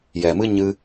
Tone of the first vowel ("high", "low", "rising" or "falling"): low